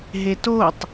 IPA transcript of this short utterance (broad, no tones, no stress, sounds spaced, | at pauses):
ɦ e t o tˤ